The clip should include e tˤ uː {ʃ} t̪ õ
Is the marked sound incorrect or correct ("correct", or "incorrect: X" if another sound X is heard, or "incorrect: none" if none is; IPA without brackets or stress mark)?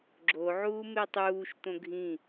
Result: correct